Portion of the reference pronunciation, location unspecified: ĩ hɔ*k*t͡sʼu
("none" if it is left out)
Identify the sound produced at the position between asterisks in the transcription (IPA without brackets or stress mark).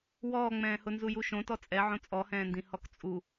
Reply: k